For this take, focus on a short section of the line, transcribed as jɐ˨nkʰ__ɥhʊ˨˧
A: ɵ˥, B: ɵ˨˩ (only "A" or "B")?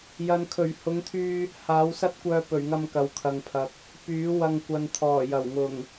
B